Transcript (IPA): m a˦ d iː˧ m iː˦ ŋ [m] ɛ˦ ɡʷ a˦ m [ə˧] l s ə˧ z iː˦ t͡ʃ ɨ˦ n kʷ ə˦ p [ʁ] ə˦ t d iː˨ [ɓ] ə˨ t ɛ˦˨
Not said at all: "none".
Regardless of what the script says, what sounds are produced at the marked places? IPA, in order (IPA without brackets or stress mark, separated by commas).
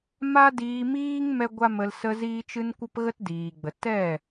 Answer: m, ə˧, ɣ, ɡ͡b